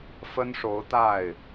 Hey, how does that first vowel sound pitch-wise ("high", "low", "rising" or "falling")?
high